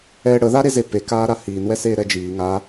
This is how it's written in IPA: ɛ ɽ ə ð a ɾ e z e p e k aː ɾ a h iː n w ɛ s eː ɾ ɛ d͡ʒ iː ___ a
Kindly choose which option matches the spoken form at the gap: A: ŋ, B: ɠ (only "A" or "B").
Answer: A